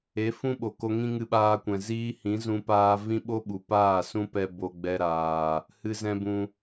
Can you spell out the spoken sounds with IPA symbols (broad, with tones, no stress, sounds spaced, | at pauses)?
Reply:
e˨˦ f ũ˦ ɓ o˨ k o˧ ŋ ĩ˦ ŋ ɨ˧ ɓ aː˧ kʷ ɛ̃˨ z iː˦ h ĩ˨˦ z ũ˦ p aː˦ v ĩ˦ ɓ o˦ ɓ u˨ p aː˦˨ s ũ˦ p ɛ˧ b o˧ ɡ͡b ɛ˧ ɾ aː˨ | h ɨ˦ z ɛ̃˦ b ũ˧